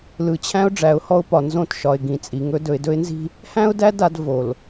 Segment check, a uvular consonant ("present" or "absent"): absent